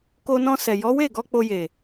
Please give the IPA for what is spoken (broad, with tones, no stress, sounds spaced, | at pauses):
k o˧ n ɔ̃˧ s ɛ˨ j ɔ˨˦ w e˦˨ ɡ ɔ˧ k͡p o˧ j e˨